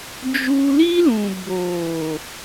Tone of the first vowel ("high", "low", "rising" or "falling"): high